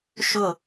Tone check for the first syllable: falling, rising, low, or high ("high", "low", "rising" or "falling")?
falling